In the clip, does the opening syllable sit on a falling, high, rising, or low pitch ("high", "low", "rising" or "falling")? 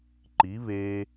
rising